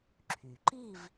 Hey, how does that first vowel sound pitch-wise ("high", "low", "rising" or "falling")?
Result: low